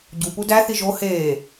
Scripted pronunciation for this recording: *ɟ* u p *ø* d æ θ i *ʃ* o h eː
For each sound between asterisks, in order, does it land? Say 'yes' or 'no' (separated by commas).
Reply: yes, no, no